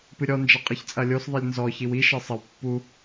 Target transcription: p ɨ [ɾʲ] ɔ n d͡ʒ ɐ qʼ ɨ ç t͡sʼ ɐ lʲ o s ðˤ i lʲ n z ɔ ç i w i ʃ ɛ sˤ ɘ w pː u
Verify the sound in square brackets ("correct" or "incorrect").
correct